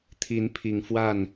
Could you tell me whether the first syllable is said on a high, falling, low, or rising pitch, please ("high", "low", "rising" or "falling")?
rising